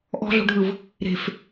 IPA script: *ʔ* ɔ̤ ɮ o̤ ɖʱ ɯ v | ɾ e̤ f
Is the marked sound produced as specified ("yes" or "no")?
yes